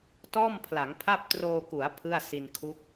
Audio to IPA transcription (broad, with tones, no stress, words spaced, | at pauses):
tɔː˥˩mpʰla˩˦ŋpʰa˥˩p̚ troː˧ku˩˦a̯ pʰɯ˥˩a̯ si˧nkʰu˦˥k̚